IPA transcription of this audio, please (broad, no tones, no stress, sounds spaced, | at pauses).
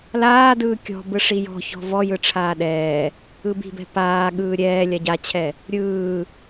l aː d ɯː kʲ ɔ̤ b ɯ ʂ i j ɔ̤ ç ɔ̤ v ɔ j ɯ ʈ͡ʂʰ aː ɗ ɛː | ɯ b i̤ b ɛ̤ p aː ɠ ɯː ɾʲ ɛː lʲ a ɟ a t͡ɕʰ ɛ | ɾʲ ɯː